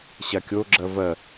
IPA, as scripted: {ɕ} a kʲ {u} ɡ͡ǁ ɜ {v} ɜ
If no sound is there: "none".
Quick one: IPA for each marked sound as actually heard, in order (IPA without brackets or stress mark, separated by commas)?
ɕ, o, v